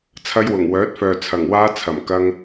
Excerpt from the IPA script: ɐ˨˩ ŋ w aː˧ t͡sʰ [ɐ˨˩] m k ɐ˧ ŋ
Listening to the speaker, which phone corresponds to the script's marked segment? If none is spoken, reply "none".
ɐ˨˩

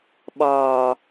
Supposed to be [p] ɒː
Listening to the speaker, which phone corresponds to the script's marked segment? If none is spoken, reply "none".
ɓ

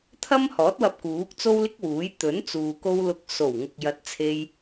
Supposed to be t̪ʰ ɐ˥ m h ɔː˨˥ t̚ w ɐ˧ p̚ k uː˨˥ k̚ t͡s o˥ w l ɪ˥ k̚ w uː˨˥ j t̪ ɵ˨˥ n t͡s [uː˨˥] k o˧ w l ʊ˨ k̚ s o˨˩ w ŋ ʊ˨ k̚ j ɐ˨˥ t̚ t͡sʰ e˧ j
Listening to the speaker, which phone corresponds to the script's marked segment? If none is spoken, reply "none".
uː˨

